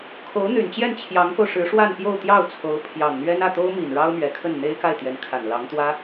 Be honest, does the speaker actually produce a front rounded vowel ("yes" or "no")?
yes